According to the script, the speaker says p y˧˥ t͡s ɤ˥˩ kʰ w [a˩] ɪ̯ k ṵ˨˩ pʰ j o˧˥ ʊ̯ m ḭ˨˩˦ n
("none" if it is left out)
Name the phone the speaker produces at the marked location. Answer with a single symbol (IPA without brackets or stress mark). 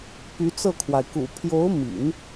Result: a˩